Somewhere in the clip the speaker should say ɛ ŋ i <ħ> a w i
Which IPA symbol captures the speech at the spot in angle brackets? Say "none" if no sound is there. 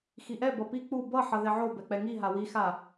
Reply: ɦ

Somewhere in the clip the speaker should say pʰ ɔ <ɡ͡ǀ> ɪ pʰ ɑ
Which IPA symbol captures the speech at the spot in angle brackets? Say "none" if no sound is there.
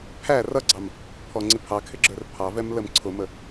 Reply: ŋ͡ǀ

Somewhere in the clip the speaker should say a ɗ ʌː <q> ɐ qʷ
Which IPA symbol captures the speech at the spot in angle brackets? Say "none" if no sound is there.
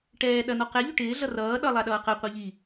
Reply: q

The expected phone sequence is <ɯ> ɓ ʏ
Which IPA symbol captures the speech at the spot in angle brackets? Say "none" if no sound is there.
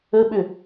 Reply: ə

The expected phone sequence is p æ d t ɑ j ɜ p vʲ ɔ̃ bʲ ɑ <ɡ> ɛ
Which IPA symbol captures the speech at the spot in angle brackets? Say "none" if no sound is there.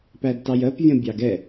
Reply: ɡ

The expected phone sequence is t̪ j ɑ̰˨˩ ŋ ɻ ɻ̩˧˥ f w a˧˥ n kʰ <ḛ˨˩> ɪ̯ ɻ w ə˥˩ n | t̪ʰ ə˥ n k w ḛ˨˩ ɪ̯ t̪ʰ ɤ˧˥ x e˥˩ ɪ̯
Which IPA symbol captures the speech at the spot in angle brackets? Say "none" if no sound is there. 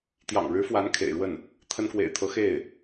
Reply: ḛ˨˩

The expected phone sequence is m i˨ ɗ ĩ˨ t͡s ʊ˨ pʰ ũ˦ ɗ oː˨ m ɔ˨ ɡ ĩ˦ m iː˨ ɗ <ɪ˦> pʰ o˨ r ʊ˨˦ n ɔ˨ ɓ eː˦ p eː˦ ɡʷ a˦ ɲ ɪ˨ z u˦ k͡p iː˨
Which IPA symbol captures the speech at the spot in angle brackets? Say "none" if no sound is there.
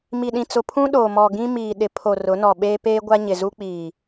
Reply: ɪ˨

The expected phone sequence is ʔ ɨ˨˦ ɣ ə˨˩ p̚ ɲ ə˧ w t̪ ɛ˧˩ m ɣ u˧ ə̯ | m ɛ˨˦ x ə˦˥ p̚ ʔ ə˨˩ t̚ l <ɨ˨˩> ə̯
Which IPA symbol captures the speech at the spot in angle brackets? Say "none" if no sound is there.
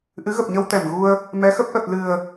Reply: ɨ˨˩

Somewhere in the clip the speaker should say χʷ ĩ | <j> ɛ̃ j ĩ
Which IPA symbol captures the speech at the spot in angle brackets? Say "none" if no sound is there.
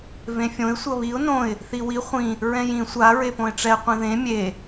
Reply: ɹ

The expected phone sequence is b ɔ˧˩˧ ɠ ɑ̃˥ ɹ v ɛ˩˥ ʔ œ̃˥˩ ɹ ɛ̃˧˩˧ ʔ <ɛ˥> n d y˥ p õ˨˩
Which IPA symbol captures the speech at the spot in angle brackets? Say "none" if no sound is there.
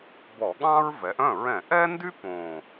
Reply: ɛ˥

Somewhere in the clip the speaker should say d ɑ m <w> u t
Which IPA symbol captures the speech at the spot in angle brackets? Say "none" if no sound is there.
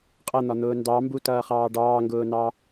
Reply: b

